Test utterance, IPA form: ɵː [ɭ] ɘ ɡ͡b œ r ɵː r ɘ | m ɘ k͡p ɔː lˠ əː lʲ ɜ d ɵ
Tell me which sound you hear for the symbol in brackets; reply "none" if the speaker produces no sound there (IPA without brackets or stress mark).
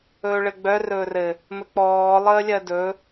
ɭ